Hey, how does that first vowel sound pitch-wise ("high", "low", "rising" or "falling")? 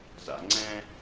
low